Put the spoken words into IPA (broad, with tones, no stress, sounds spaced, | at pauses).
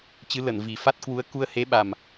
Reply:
t͡ɕ ɨ˨˦ l ə˧˩ n v i˨˩ f a˦˥ t̚ k w u˨˦ ə̯ k u˧ ə̯ h e˨˦ ɓ a˨˩ m